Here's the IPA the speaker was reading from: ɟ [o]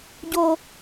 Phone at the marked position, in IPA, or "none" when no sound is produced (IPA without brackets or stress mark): o